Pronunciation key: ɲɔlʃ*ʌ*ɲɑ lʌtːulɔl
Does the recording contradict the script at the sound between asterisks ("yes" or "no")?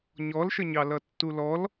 yes